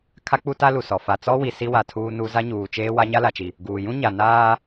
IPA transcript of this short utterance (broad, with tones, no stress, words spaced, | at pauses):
kʰa˦k͡pu˦ ta˦lu˨sɔ˨ fa˨ t͡sɔ˦wi˨ si˦wa˨ tʰuː˦nu˦ za˦ɲuː˨t͡ʃeː˦ wa˦ɲa˦la˨t͡ʃi˨ | ɡuː˨ jũ˦ ɲa˨naː˦